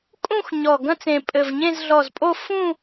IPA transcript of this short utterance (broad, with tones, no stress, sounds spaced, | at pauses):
kʼ ũ˥˧ x ɲ ɔ˨˩ ɡ ɐ̃˥˧ t͡s ẽ˨˩ pʼ ɘ˨˩ v ɲ ẽ˥˧ z ɮ ɔ˨˩ z pʼ o˥˧ f ũ˥˧